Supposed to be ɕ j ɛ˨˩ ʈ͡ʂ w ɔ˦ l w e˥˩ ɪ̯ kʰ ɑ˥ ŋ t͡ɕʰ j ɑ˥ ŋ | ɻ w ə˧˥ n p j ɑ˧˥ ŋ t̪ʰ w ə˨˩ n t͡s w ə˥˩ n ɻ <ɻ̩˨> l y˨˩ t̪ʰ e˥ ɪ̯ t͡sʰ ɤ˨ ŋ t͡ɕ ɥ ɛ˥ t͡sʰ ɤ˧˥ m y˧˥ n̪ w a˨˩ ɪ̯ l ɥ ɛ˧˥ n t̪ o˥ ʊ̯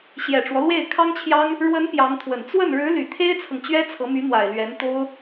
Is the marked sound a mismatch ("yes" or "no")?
yes